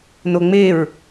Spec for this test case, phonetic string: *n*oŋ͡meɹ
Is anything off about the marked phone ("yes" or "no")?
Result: no